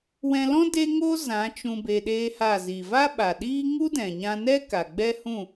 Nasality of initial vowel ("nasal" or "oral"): nasal